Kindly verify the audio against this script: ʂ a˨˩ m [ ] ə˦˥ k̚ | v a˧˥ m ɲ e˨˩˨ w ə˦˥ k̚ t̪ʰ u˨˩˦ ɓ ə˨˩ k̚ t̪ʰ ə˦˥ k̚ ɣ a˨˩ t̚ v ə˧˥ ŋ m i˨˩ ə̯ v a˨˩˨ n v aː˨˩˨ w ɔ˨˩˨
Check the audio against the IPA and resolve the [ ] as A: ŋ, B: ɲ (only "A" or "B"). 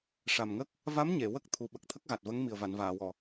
A